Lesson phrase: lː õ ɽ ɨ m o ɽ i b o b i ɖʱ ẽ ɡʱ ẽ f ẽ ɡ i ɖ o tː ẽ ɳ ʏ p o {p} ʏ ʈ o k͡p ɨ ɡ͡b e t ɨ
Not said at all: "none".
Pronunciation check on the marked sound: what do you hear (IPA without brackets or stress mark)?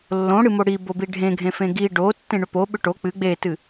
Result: ɓ